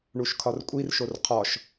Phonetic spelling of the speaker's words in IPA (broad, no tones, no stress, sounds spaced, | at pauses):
ɳ u ʃ kʰ ɒ r kʷʼ i r ʃ o r qʰ ɒ ʃ